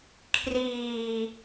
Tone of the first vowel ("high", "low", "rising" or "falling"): low